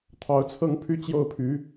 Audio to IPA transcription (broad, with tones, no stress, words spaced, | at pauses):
t̪ʰɑ˧˥ʊ̯t͡sʰɤ˥ŋpʰy˥ t͡ɕjo˥˩ʊ̯pʰy˧˥